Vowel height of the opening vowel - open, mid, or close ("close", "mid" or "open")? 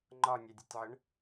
open